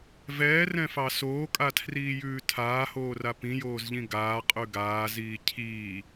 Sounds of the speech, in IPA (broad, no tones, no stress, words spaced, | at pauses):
vɛːrɛ̃fɑ soːkʼatʰriːjʉː tʰaːhoːra pĩjoːzʎĩ ɡaːqʼʉ ɡaːziː cʰiː